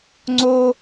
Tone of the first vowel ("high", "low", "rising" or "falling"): high